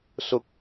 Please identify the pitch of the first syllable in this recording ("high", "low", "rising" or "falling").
low